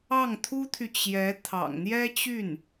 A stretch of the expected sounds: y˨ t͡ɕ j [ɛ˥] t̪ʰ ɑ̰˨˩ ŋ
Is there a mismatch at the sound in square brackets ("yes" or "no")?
yes